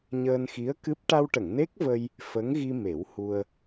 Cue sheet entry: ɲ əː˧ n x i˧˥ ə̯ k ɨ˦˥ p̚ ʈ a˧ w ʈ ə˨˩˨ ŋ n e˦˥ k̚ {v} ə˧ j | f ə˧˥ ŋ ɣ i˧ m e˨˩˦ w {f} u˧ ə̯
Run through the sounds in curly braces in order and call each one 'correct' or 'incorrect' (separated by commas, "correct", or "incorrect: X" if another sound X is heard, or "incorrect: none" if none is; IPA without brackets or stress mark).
correct, incorrect: h